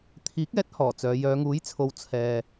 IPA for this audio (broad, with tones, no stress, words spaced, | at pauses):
t̪ʰiː˨˥k̚ɛː˨˥t̚ hɔː˨˩t͡sœː˨˧ jœː˨˧ŋuː˨˥jt͡sʰo˨˧w t͡sʰɛː˨